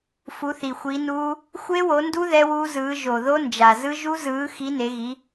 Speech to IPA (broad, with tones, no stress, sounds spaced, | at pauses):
f u˨˦ θ i˨˩ xʷ i˨˦ n uː˦˥ | xʷ e˦˥ w o˨˦ n d u˦˥ ð ɛ˦˥ w uː˦˥ z ɯː˨˦ ʒ o˨˩ ð o˦˥ n d͡ʒ a˨˩ z ɯ˦˥ ʒ u˦˥ z ɯː˨˦ x i˨˦ n e˨˦ ɣ i˨˦